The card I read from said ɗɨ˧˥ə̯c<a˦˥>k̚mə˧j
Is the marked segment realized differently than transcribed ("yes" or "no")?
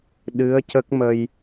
yes